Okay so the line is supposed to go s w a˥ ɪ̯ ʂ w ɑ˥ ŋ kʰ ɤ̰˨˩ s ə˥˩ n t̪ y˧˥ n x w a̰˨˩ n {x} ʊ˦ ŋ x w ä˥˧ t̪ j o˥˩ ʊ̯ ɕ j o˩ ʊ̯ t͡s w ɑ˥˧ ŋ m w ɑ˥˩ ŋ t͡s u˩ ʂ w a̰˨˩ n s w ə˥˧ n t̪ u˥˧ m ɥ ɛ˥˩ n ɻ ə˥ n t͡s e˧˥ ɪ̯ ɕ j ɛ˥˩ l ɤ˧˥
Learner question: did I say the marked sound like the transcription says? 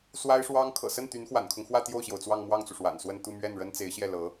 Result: no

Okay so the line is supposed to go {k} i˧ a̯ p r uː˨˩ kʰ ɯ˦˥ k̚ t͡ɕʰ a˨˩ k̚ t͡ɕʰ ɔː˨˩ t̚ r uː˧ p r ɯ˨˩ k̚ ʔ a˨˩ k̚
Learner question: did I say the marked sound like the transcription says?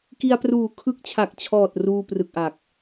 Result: yes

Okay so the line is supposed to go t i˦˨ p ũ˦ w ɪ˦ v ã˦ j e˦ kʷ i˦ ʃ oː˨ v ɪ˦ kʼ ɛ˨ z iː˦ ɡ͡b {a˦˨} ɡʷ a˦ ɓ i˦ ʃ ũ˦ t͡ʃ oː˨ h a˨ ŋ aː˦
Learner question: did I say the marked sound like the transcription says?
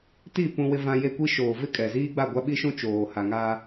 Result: yes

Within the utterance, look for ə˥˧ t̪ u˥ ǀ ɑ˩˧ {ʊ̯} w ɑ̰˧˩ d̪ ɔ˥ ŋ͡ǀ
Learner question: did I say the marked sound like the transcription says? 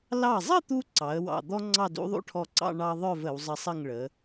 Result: no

